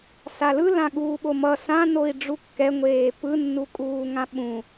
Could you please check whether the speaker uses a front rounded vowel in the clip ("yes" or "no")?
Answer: no